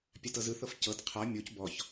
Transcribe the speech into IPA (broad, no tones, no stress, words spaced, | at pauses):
pʲatɤzɯθɤf cɤt qʰa mʲoc bɔç